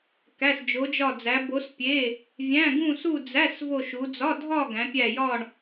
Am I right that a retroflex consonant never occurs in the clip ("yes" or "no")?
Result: no